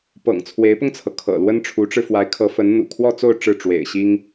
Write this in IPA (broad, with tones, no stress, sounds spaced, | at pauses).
p ɤ̰˨˩ ŋ t͡sʰ w e˧˥ ɪ̯ p ʊ˧ ŋ t͡sʰ ɤ˩ kʰ ɤ̰˨˩ l w ə˥ n ʈ͡ʂʰ u˧˥ ʈ͡ʂ ɻ̩˧ f w a˧˥ ɪ̯ kʰ ɤ˧˥ f ə˧˥ n n̪ ṵ˨˩ kʰ w ɔ˥˧ t͡s o˥˧ ʊ̯ ʈ͡ʂ ɻ̩˥˩ ʈ͡ʂ w ḛ˨˩ ɪ̯ ɕ i˥ ŋ